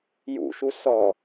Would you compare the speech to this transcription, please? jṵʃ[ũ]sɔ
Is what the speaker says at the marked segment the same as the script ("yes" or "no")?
no